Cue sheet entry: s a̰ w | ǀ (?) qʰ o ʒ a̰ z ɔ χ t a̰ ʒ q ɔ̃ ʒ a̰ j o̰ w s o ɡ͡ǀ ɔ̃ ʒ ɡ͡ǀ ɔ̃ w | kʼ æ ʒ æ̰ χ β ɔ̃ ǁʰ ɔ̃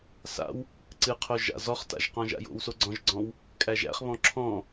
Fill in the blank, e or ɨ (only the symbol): ɨ